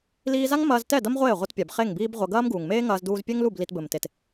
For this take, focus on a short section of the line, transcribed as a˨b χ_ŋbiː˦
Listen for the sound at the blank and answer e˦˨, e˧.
e˦˨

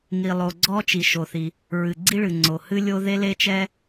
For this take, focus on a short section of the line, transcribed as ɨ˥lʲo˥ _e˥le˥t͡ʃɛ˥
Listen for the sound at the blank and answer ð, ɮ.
ð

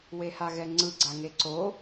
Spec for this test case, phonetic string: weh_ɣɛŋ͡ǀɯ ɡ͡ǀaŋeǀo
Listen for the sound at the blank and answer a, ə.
a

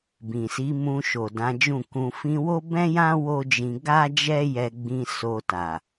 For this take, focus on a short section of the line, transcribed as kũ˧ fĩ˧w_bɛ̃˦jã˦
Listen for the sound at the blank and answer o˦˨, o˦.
o˦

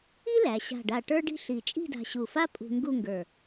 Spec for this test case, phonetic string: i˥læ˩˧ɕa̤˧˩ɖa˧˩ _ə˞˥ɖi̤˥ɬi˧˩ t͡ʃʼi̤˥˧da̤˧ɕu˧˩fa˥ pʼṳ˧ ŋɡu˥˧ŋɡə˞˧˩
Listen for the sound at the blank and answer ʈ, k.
ʈ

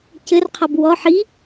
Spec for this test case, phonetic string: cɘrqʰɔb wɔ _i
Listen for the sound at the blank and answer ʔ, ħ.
ħ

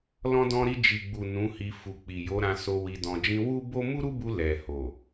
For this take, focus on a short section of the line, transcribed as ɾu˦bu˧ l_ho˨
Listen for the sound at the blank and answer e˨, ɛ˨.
ɛ˨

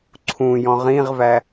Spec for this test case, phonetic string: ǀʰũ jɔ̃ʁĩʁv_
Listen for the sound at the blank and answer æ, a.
æ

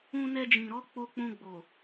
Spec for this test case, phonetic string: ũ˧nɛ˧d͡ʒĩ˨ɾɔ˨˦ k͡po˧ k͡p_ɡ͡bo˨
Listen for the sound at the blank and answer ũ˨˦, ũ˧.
ũ˧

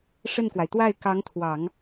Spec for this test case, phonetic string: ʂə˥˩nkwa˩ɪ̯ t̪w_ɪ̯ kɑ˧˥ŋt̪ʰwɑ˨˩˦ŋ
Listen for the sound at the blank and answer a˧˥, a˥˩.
a˥˩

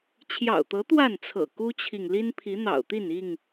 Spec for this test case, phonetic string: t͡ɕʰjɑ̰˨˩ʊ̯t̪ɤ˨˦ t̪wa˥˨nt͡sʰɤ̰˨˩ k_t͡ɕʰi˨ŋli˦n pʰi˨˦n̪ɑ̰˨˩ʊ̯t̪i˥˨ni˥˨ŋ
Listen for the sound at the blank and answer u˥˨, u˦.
u˦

